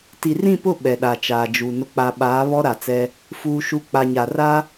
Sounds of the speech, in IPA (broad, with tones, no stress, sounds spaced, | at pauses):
t i˨ r ĩ˦˨ p ʊ˦˨ ɓ ɛ˨ ɗ a˨ t͡ʃ aː˨ d͡ʒ u˨ n ʊ˨ k͡p a˨ ɓ aː˨˦ β ɔ˦ ɾ a˨ t͡s ɛ˦ | f uː˦ ʃ u˦ k͡p a˨ ɲ a˨ r a˦